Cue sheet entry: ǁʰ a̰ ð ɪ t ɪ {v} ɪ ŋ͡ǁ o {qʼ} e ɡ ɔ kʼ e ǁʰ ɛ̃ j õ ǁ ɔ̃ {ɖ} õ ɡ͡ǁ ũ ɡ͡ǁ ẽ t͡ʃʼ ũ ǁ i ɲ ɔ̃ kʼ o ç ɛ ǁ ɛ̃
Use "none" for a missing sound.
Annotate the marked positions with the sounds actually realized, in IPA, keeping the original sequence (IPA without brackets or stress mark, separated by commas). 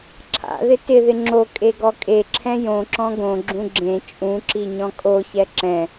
ð, kʼ, ɡ